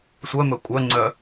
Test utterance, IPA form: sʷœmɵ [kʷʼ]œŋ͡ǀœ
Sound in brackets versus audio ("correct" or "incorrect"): correct